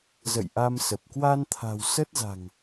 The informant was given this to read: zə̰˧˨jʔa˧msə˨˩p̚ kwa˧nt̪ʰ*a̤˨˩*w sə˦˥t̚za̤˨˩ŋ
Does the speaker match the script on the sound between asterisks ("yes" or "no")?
yes